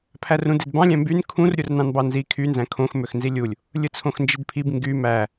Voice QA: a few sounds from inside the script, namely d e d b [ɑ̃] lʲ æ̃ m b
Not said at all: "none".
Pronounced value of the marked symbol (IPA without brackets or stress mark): ɑ̃